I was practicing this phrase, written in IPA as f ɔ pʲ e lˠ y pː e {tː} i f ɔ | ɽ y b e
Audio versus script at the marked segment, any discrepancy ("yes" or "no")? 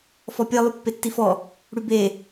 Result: no